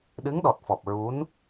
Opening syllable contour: rising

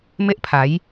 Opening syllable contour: high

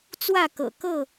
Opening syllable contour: falling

